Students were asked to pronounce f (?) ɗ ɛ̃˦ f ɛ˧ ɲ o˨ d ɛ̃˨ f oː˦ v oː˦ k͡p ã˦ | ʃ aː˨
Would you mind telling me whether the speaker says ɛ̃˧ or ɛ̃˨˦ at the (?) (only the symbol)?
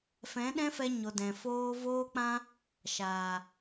ɛ̃˨˦